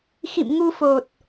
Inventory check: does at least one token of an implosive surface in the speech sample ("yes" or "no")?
no